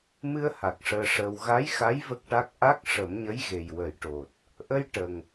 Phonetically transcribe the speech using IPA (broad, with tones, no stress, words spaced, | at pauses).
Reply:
mɨ˧ə̯ha˨˩k̚ ʂəː˧ʂəː˧w ɣa˧˥jxa˧˥j və˦˥k̚ʈa˦˥k̚ ʔa˦˥k̚ ʂə˨˩˦mɲə˧˥jɣe˨˩j wə˨˩˦jʈo˨˩t̚ | ʔə˧j ʈə˨˩ŋ